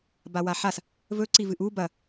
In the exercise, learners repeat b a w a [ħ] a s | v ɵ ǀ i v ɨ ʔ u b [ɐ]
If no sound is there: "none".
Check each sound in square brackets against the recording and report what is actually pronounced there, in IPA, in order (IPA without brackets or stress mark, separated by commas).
ħ, ɐ